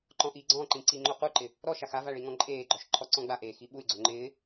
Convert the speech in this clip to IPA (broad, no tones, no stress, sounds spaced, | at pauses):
ǃ ɔ̃ ʔ i ɡ͡ǀ ɔ̃ ǃ ĩ ǀ i ŋ͡ǃ o q u ǃ ɪ | ɾ ɔ ʃ a x a v a ɭ i ŋ ɔ̃ ǃʼ eː ɡ͡ǃ ɔ ʃ ǃʰ ɔ ǀ ɔ̃ ɡ͡b a ʔ eː x i ɓ u y̯ ɡ͡ǀ o ŋ͡ǃ ɪː